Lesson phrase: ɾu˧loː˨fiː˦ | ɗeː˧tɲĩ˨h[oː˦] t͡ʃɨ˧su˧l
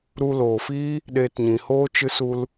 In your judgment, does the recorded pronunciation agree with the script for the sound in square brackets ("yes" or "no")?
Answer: yes